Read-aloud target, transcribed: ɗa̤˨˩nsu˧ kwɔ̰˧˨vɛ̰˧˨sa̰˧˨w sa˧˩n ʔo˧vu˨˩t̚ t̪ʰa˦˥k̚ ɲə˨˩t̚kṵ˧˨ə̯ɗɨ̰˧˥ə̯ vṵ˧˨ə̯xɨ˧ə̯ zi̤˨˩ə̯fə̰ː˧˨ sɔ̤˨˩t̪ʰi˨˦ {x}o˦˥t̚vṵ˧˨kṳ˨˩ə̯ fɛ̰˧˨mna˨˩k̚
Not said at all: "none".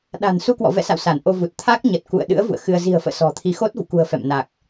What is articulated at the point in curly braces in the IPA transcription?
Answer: x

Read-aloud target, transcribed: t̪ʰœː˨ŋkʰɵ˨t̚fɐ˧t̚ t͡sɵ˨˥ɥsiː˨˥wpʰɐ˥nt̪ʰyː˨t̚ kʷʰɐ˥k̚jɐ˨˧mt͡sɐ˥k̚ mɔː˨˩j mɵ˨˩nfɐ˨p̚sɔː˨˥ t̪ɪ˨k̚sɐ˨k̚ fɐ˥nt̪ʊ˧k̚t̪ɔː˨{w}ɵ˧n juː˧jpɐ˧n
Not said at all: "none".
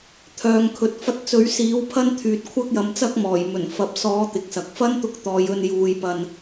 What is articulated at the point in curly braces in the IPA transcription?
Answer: j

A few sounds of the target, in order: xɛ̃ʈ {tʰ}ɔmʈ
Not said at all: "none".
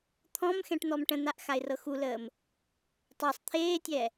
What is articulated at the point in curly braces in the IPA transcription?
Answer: n̪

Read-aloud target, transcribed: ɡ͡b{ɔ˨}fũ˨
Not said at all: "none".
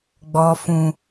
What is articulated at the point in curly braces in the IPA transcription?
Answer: ɔ˨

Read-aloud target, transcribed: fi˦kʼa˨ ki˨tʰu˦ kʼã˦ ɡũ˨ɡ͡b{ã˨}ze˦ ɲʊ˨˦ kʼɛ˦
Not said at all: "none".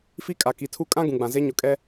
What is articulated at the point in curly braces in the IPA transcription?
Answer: ã˨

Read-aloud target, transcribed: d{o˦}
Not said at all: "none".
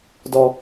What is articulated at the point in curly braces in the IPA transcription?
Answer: ɔ˦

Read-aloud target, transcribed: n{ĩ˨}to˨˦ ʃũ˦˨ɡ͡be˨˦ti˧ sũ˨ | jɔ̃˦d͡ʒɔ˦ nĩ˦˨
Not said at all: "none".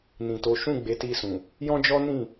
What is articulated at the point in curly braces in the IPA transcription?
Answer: ĩ˨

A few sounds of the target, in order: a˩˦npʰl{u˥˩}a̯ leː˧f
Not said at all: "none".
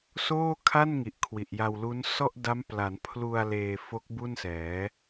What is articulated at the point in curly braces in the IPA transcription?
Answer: u˧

